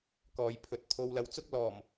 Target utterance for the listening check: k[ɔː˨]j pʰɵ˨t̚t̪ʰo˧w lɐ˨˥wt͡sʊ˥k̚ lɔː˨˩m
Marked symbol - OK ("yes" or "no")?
yes